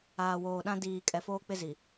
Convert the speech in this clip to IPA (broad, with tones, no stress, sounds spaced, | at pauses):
aː˨ w oː˨ ɗ ã˦ d iː˨ kʼ ɛ˨ f oː˦ k͡p ɪ˦ z i˨